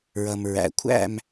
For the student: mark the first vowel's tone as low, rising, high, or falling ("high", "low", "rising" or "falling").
low